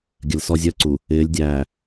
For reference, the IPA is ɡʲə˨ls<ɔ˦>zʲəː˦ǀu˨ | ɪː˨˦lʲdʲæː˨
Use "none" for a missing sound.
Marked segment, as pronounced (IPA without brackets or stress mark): ɔ˦